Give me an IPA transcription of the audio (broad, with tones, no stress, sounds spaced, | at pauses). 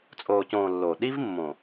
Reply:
t͡sʼ oː˨ c õː˨ lː o˨ ɗ i˦ v mː õ˨